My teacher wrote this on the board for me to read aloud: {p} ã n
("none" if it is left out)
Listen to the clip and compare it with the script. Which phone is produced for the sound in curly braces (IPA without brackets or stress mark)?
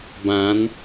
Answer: b